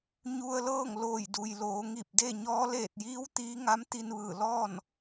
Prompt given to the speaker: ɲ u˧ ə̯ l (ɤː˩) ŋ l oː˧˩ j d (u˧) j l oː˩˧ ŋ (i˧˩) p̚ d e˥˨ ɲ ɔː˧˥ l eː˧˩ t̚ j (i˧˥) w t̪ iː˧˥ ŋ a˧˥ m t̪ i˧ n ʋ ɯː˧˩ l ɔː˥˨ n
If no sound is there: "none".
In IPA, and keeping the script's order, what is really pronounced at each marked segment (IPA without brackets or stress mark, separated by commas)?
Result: ɤː˥˨, u˩, i˧˩, iː˧˥